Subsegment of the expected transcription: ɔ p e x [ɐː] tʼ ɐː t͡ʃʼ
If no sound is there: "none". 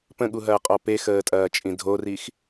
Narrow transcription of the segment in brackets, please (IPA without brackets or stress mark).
əː